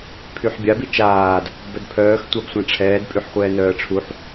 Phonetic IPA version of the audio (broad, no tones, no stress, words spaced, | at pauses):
pʰyħbʲa bit͡ʃaːd | bœdpʰœːx tʷabsʷãʈ͡ʂʰɛːd pʼyħχʷɛːnœːə̯ʈ͡ʂʰuħ